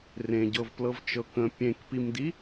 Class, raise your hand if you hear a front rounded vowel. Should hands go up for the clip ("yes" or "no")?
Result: no